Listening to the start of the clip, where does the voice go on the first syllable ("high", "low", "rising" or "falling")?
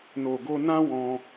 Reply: low